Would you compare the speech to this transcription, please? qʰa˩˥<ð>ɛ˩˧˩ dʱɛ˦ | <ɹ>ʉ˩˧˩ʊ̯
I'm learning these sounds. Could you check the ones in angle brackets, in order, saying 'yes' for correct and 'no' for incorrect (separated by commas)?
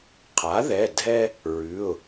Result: yes, yes